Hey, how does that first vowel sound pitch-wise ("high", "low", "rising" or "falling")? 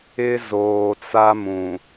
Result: high